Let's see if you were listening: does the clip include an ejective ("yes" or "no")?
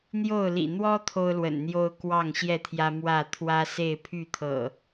no